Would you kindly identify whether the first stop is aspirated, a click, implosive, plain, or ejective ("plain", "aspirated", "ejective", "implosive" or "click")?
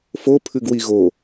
aspirated